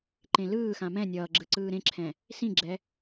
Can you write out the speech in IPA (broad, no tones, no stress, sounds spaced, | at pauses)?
ǃ ẽ l ɯː x ã m ɛ̃ nʲ ʌː ɡ͡ǁ ɯ ǀ ɯː ɾ ẽ ǁʰ ɛ̃ | s ĩ ɡ͡ǁ ɛ